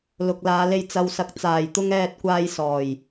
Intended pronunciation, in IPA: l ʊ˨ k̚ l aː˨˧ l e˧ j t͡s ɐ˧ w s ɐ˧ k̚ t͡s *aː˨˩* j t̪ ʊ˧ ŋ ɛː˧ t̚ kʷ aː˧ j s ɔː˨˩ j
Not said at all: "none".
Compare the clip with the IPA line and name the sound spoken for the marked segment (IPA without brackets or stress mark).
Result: aː˨˩